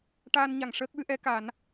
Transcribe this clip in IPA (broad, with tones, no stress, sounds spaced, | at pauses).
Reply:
ʈ aː˧ n ɲ a˨˩˨ ŋ ʂ əː˦˥ k̚ w ɨ˧˥ ʔ ɛ˧˥ k a˨˩˦ n